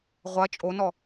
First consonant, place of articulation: uvular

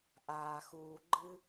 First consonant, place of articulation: glottal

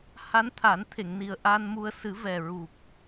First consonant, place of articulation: glottal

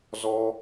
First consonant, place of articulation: alveolar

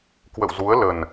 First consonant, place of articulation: velar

